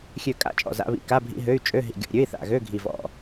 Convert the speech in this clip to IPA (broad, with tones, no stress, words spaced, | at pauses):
xʲø˧˩kʼa̰˧˥˧ t͡ʃʼɔ̰˧˩za̰˧˥˧βḭ˧˥˧ ka˧˥˧bʱḭ˧˥˧ɦø˧˥˧y̯ t͡ʃʼø˧˥˧ɦḭ˧˩ ɡʲɔ̰˧˩ ɾʲø˧˥˧i̯θa̰˧˩ɣø˧˥˧ ɡʱi˧˩vɔ̰˧˩